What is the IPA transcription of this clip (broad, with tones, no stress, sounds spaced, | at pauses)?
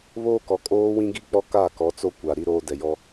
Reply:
β oː˦ k ɔ˨ kʼ oː˦ w ĩ˦ ɡ i˦ k͡p ɔ˦ k a˦˨ k ɔ˨˦ t͡s o˦ kʷ a˨ ɾ i˦ ɾ oː˦ d ɛ˨ j ɔ˦